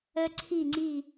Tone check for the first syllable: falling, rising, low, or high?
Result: high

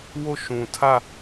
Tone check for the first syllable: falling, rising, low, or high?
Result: falling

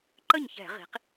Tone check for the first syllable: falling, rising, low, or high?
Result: falling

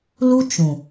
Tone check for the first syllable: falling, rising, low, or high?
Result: high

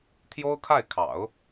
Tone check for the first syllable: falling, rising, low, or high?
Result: high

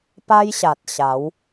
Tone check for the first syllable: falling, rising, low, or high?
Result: high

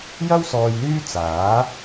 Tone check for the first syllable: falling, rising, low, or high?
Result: high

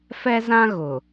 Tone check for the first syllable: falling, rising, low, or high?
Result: high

